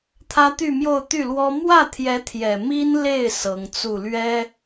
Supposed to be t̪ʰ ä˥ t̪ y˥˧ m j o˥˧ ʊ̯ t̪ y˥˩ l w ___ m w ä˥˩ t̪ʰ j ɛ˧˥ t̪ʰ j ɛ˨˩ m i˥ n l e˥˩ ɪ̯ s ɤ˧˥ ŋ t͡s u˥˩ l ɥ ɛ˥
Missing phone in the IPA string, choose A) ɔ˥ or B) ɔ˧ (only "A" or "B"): A